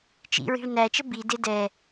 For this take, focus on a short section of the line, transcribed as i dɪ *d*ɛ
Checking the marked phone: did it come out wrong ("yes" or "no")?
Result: no